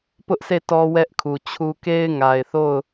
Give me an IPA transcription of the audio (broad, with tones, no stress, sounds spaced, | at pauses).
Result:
p ʊ˦ ʔ sʰ e˦˨ t ɔ˦ w ɛ˦ ʔ kʰ u˨ t͡ɕʰ u˦ k e˦ ɪ̯ ŋ a˨ ɪ̯ θ o˦˨ ʊ̯